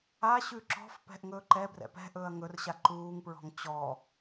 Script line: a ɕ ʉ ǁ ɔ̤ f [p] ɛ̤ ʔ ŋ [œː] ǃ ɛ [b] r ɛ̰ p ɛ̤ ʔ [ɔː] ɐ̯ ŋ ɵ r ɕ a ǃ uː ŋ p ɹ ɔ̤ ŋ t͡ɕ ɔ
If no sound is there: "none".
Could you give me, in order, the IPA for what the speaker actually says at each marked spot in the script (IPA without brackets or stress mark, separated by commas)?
p, ɵː, b, ɵː